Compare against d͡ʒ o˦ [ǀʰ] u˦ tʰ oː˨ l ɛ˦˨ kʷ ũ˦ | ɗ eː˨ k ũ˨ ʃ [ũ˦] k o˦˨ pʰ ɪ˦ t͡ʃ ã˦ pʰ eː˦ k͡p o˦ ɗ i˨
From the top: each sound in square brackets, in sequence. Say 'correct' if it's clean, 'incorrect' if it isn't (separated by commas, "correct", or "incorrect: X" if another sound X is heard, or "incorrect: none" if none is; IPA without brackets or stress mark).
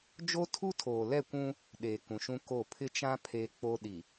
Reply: incorrect: tʰ, correct